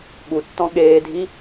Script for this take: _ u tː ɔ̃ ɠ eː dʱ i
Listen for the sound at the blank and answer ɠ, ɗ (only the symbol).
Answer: ɠ